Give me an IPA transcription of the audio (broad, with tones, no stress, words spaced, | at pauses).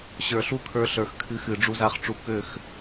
ɕə˞˨ɬu˦kʰə˞˧ɬə˞˨x kʰɨ˨˦xɨ˨ ɖ͡ʐu˧za˧χʈ͡ʂu˨˦ kø˦˨x